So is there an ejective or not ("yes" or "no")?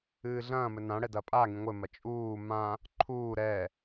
yes